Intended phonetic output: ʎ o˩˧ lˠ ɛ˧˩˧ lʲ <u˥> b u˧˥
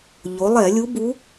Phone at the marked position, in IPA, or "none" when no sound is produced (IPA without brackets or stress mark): u˧˥